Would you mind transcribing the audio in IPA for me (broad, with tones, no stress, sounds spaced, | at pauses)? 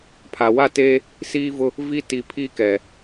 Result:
pʰ a˨ w a˦˨ t eː˦ | s iː˦ v ʊ˦ | v i˦ t i˨ pʰ i˦ k ɛ˨